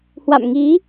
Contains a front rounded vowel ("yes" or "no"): no